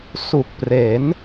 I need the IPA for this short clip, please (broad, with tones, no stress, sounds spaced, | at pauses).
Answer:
s u˨˩ k̚ p r e˩˦ n